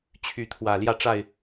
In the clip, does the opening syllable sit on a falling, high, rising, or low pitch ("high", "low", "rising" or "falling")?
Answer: rising